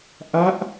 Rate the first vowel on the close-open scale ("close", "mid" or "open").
open